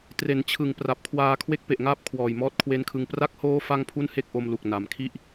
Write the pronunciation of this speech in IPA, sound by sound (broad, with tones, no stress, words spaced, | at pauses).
tre˩˦nt͡ɕʰɯ˨˩ŋ pra˨˩p̚kʰwaː˧ kʰwe˦˥k̚pe˨˩ʔŋaː˦˥p̚ kʰwɔː˨˩jmɔː˦˥t̚kʰwe˦˥nkʰɯ˧ŋ pra˦˥k̚hoː˦˥ fa˥˩ŋpʰu˥˩nhe˥˩k̚ʔo˧m lu˨˩k̚ na˩˦mkʰi˥˩ʔ